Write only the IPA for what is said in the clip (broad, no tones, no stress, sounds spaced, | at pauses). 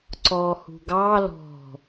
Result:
ǀ ɔ h ṳ ɡ ɑ l ɔ̤